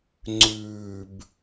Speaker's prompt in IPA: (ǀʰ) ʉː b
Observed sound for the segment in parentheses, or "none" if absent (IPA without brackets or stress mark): ŋ͡ǀ